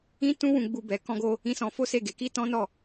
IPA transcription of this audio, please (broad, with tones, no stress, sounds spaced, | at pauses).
ĩ˦ t ũ˦ w ũ˧ ɡ͡b u˧ b ɛ˧ k ɔ̃˦ ɡ o˦ | ĩ˦ s ɔ̃˦ f o˦ s e˦˨ ɡ e˨˦ k i˦ t ɔ̃˦ n ɔ˦˨